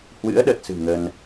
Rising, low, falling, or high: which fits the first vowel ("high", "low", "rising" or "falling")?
rising